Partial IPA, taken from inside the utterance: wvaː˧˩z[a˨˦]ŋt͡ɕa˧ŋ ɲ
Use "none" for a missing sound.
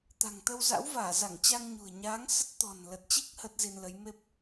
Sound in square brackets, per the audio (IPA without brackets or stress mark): a˧˩